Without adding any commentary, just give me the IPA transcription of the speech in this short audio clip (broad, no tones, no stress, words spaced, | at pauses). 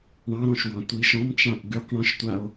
ɳɑ̃ɾɔ̃ʃwɑ̃ tʷiʃ ɔ̃mt͡ʃãʔ ɡʉq ɳɔ̃ʃtʷao̯